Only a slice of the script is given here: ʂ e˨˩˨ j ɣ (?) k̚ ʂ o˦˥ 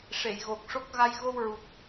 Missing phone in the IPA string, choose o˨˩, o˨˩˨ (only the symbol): o˨˩